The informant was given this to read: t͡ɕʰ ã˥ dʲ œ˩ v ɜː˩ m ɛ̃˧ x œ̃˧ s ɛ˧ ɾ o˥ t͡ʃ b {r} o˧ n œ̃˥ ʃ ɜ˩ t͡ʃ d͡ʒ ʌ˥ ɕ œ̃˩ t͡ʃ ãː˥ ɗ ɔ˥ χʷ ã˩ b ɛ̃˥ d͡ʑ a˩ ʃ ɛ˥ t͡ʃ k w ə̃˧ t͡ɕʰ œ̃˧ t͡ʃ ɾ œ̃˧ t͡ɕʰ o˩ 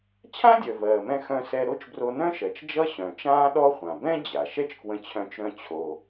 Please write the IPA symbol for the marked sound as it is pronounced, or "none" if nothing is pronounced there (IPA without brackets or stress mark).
r